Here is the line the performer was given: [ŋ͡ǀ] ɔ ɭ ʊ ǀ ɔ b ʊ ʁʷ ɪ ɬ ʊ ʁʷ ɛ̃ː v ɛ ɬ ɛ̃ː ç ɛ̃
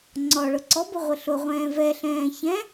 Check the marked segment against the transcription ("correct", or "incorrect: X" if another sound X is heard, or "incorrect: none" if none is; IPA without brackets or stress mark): correct